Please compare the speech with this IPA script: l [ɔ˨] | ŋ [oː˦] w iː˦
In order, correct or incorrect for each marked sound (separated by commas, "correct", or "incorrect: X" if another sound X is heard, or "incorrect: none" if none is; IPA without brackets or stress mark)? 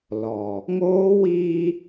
correct, correct